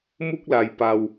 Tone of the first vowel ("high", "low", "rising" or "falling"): high